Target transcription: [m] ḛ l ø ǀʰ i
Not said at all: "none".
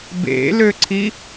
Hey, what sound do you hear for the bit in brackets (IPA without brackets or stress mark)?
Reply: b